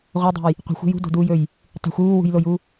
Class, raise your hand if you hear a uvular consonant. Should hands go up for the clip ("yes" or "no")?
yes